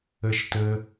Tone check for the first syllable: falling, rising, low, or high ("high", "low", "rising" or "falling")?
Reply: low